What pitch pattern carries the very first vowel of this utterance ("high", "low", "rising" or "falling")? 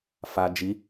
low